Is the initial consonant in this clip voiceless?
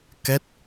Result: yes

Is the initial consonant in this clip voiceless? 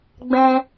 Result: no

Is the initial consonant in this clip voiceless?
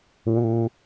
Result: no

